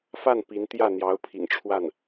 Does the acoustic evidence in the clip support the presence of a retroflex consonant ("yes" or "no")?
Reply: yes